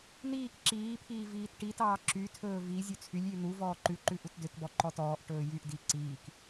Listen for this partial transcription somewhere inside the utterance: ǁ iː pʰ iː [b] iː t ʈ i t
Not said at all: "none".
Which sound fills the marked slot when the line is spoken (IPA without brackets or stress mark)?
v